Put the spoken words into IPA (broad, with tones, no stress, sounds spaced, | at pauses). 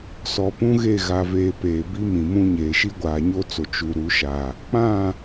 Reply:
s ɔ˨ p ũ˦ ɣ e˦˨ ɣ a˨ v eː˨ p eː˨ b i˦ m ĩ˨ m ũ˦ ɲ eː˨ ʃ i˦ ɡʷ aː˨ ɲ o˦ t͡s o˨ t͡ʃ u˨ ɾ u˨˦ ʃ a˨ | k͡p ã˦˨